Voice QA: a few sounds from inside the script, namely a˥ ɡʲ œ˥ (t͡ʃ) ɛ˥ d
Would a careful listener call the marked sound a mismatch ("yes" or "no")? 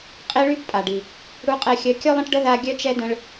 no